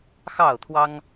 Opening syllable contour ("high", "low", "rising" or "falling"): falling